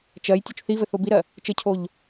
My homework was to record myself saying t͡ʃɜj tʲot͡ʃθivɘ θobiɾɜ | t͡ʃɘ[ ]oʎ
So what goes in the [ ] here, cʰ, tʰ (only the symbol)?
cʰ